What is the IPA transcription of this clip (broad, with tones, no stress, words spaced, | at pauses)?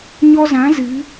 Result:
ɲɔ˧zã˨˦ zɨ˨˦